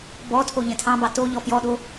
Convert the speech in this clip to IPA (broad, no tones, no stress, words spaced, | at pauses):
bɔtʰo ʎɛ̃tʰɑ̃bɑ to ʎɔfjɔɗo